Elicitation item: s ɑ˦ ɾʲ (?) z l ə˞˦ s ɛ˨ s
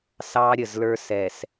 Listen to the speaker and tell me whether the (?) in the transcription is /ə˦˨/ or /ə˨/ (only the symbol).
ə˨